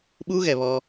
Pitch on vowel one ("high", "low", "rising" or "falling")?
high